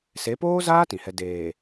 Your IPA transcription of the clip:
s e˨˦ p oː˦ z aː˦ t ĩ˨ h ɛ˦ d eː˨

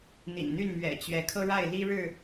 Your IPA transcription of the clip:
n̪ ḭ˨˩ n n̪ y˥˨ n m ɥ ɛ̰˨˩ t͡ɕ ɥ ɛ˨˦ kʰ ɤ˦ ɻ a˥˨ ɪ̯ l i˦ ɻ ɻ̩˥˨

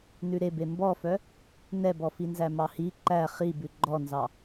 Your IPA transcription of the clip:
n ʉ ɾ e b e m b ɔ f œ | n ɛ b ɔ f i n z æ m ɑ h i ǃ æ χ i b ʉ ɡ͡ǃ ɔ n z ɑ

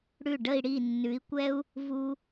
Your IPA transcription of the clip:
ɽ ʉ˥˩ ɖ ə˥˧ i̯ ɽ i˥˩ nː ʉ˨˥ i̯ kʷ ɛ˥ u̯ | v u˥

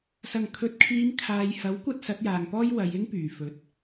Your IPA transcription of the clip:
s ɐ˨˩ ŋ kʰ ɵ˨ t̚ kʰ iː˨˧ m kʰ aː˨ j h ɐ˨˥ w kʷ ɐ˧ t̚ s ɐ˨˥ t̚ j aː˨ ŋ p ɔː˥ j w ɐ˨˧ j ɪ˥ ŋ p yː˨˩ f ɵ˨˥ t̚

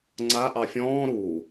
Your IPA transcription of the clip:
ŋ͡ǀ a ʔ ɑ fʲ ɔ̃ː ɾ u

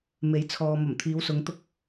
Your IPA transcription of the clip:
m e˨˥ j t͡sʰ ɔː˨ m ɐ˨˩ m t̪ʰ iː˨˧ w s ʊ˨˧ ŋ t̪ ʊ˧ k̚

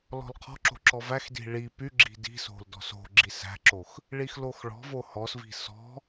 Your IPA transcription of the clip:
l ɔ̤ l qʰ ɔ̤ ǁ o̤ ǁ ɔ v æ x d i̤ ɭ i p y ɡ͡ǁ i̤ d i̤ s o̤ l d ɔ̤ s o̤ ɡ͡ǁ i s æ̤ ǁ o x | ɭ i x l o x ɭ ɔ̤ v o h ɔ s v i̤ s ɔ̤

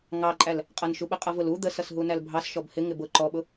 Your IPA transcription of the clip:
ŋ ɑ ǃʼ æ l | qʼ ʌ n ʃ u ɓ ə qʼ ʌ v ʊ l u d̪ ə s ʌ s ɦ u n æ l bʱ ɑ s ʃ ɔ b h ɪ ŋ ɪ b ʊ ǃ ɔ ɓ ʊ

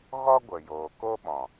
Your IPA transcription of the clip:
ɣ ɔ˦ ɡʷ ə˨ j oː˨ k o˦ ɓ ɔ̃˨

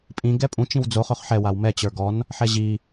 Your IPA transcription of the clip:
pʼ ĩ ɡ ɛ pʼ ũ t͡ʃ ĩ w d͡z o χ ø χ ħ ɛ w a w m ɛ t͡ɕ ə˞ ɡ ɔ n | ħ ɛ ʑ i

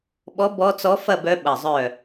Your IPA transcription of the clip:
ɓ ɔ˧˥ b ɔ˧˥ t͡s ɔ˧˥ f ɐ˥˨ b œ˧˥ ɓ ɐ˧˩ zˤ œ˥˨

